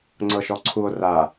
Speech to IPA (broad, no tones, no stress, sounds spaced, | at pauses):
ŋ͡ǀ ɤ ʃ ɔ ǀʰ u o̯ r a